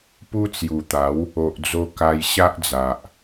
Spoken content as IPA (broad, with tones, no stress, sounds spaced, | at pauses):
p u˦ t͡s j u˨˩ t̪ a˨˦ w | o˨ ʔ d͡z o˧ k a˧ j ɕ a˦ ʔ d͡z a˨ ʔ